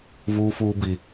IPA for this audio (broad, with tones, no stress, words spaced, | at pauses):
vuː˦fuː˦bi˦